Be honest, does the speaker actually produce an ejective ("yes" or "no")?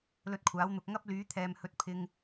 no